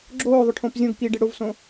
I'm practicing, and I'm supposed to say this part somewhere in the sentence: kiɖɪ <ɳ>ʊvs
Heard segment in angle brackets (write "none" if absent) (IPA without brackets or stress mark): ɽ